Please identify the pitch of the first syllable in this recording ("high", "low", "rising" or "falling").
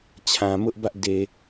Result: low